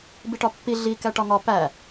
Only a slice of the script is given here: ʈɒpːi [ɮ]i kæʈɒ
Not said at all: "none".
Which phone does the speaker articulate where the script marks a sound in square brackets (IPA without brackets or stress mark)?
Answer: ɮ